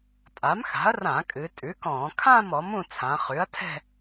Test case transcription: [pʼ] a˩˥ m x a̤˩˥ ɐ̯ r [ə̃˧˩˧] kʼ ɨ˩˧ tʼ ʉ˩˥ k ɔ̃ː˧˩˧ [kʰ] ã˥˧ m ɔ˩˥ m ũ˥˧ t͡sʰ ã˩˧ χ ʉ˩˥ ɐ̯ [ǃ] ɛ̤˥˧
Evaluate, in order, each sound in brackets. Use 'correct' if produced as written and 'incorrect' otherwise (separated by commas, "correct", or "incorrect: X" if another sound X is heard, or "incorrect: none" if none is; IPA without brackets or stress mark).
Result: incorrect: tʼ, incorrect: ã˧˩˧, correct, incorrect: tʰ